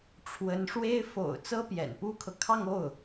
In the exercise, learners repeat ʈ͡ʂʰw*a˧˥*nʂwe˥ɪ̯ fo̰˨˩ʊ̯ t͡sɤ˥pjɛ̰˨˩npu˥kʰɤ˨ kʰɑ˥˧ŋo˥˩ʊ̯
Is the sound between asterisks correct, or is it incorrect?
incorrect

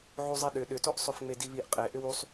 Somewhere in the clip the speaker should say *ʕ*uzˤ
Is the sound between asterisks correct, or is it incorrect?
correct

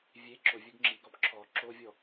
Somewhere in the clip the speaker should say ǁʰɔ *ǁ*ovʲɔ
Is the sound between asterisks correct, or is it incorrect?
correct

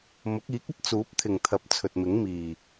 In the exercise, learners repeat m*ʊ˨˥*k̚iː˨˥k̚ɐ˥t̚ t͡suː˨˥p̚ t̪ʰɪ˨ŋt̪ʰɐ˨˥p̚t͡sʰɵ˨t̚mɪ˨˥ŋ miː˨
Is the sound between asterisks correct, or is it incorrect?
correct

